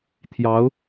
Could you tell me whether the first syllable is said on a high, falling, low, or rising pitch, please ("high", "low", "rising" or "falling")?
rising